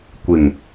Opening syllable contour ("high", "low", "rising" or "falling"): low